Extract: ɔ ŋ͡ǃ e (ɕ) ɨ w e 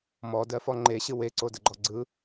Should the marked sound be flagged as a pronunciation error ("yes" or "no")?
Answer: no